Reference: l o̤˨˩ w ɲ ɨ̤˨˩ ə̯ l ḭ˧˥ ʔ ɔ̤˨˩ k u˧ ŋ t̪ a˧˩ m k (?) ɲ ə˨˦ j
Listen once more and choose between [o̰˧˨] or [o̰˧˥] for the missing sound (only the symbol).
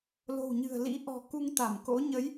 o̰˧˥